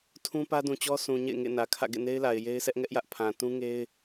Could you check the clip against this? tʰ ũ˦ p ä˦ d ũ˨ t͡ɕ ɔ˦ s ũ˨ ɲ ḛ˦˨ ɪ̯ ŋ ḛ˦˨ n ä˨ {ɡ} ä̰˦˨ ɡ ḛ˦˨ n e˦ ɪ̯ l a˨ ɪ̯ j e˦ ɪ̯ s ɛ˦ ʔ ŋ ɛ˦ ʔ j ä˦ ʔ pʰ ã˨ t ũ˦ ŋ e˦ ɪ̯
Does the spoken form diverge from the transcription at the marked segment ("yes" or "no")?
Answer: yes